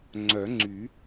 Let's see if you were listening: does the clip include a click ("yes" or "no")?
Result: yes